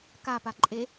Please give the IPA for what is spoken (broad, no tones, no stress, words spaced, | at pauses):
kapaǃʼe